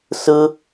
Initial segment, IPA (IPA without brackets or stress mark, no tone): s